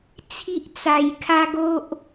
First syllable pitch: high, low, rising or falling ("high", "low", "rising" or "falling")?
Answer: high